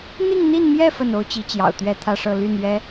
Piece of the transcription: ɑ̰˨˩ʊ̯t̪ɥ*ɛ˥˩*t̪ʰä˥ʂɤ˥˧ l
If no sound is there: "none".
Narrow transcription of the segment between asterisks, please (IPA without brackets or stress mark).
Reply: ɛ˥˩